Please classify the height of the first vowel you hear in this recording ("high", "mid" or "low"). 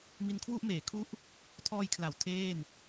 high